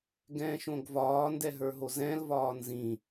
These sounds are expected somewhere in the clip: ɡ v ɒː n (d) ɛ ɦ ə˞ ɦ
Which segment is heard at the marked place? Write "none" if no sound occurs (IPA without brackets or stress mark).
d